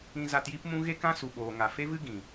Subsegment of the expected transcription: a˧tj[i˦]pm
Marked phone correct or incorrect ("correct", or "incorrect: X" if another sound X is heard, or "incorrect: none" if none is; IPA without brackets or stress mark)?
correct